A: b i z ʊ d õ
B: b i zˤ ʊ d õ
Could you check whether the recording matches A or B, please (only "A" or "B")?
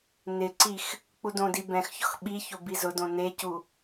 A